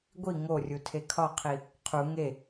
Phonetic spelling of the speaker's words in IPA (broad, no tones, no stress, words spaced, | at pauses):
ɡʷi ŋorʲutʰe kʰɒqʰi | qʰu ŋe